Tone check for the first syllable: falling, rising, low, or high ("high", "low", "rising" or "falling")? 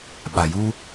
low